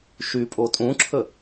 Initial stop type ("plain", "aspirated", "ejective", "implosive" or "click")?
ejective